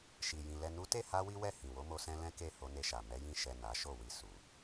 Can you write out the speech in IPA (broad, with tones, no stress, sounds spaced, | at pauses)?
ʃ i˨ j ĩ˨ l ɛ˨ n u˨˦ t e˦˨ h a˧ w i˦ w ɛ˦˨ h ĩ˨ w o˨˦ m o˧ s ɛ̃˧ l ɛ̃˦ k e˦˨ h o˧ n e˧ ʃ a˨ m ɛ˨˦ j ĩ˦˨ ʃ ɛ˨ n a˨˦ ʃ o˦˨ w i˧ s u˨